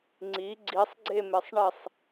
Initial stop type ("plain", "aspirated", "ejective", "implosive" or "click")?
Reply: click